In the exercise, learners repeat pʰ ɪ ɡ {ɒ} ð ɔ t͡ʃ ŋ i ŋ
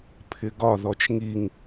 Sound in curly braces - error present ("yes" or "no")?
no